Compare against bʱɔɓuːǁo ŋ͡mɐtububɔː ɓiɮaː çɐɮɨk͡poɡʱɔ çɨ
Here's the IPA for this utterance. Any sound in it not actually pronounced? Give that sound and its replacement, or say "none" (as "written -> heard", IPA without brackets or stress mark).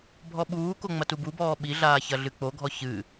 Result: ǁ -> k